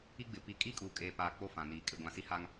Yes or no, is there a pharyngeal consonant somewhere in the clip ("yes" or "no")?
no